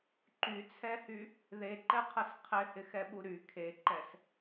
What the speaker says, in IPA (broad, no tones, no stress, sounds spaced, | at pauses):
ǃ y t͡sʰ ɛ h y | ð e ǃ ɛ qʰ ə s qʰ ɪ h ɪ x ɛ ɓ u ɾ y kʰ e ǃ ɛ s